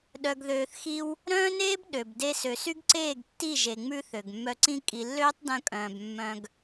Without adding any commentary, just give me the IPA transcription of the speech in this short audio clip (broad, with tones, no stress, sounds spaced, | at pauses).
ɗ œ˨ ɡ ð øː˨ θ x i˧ w | ɾ œ̃ː˦ n eː˦ b ɗ ø˨ b d e˧ s ø˨ s y˦ ɡ ǀ eː˦˨ ɡ tː i˦˨ ʒ e˨ ŋ͡m ʉ˧ θ ø˨ ɡ mː œ˧ ǀ ĩ˦ kʼ i˨ lː øː˦ tˤ d œ̃˧ kʼ œ̃ː˨ b mː œ̃˧ ɡ